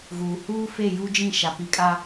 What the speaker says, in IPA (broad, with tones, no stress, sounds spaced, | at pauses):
ɣ uː˨ h uː˦ f e˦˨ j u˦ d͡ʒ ĩ˦˨ ʃ a˨ p i˨˦ kʼ a˦